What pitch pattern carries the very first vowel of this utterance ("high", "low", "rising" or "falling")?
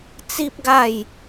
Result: high